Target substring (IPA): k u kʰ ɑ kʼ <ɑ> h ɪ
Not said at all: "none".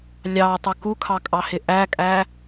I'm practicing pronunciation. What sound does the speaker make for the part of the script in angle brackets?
ɑ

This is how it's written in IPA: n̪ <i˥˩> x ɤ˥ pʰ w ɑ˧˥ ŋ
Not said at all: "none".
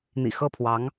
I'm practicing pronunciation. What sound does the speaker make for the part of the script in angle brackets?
ḭ˨˩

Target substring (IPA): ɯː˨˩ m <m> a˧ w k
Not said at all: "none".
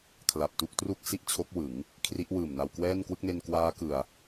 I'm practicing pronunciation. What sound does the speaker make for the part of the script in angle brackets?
n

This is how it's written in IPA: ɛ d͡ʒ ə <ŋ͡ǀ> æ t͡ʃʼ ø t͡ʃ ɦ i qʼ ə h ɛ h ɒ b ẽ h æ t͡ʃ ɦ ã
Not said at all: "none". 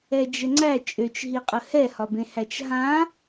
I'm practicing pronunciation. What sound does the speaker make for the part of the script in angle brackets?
ŋ͡ǀ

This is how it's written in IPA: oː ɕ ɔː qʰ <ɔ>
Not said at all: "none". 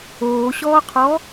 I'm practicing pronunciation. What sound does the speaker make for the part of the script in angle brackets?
ɔ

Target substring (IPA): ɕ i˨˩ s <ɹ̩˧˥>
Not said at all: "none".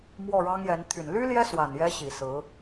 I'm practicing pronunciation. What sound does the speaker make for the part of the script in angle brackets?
ɹ̩˧˥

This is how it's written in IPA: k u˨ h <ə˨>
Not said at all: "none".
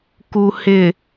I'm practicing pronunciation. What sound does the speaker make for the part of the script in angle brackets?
ɪ˨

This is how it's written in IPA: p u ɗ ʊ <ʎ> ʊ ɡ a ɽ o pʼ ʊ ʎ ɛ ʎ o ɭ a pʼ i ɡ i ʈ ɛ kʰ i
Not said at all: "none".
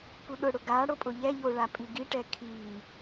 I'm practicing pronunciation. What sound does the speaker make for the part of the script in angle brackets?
ɽ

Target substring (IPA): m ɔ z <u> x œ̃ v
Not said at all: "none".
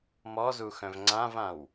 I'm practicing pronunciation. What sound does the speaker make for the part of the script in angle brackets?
u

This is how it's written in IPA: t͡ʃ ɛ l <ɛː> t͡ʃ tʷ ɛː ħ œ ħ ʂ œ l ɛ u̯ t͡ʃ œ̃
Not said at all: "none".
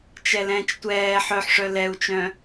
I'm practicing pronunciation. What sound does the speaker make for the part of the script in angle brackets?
ɛ̃ː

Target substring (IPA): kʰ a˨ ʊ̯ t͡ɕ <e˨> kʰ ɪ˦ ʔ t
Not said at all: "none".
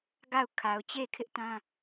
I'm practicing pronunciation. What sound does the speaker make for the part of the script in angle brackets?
e˦˨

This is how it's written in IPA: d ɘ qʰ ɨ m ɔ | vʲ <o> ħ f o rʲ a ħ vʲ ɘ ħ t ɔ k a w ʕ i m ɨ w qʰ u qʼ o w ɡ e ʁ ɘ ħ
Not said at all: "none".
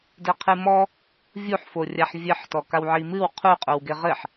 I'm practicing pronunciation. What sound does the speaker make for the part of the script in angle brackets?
u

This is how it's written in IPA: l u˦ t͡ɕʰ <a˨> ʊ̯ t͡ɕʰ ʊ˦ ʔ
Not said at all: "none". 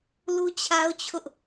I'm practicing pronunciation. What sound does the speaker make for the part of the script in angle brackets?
a˦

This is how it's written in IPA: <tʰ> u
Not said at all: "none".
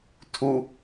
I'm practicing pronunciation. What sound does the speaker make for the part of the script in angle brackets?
tʰ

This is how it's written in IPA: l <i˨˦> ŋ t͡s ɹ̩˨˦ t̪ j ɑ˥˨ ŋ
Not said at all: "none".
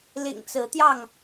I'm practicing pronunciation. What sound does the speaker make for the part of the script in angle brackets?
ḭ˨˩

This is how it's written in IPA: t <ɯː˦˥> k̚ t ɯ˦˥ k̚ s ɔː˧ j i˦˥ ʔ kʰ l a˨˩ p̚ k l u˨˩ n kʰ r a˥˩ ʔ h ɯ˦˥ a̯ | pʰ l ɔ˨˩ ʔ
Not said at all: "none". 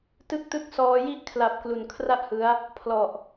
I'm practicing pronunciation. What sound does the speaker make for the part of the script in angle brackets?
ɯ˦˥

